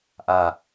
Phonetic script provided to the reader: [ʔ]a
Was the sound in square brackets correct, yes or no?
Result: yes